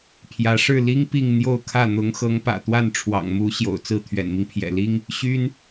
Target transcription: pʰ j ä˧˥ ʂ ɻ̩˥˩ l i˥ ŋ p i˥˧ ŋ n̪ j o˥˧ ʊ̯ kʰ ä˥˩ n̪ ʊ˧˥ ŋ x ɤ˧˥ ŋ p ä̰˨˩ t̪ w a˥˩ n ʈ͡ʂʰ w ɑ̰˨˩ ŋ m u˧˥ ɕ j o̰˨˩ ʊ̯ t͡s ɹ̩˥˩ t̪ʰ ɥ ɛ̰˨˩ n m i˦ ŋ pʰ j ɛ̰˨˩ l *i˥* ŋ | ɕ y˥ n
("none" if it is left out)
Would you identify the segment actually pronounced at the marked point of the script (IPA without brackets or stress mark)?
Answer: i˥